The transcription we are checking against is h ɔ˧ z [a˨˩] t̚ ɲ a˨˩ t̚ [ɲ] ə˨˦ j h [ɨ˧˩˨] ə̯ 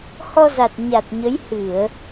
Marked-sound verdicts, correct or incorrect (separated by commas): correct, correct, correct